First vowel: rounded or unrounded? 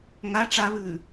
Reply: unrounded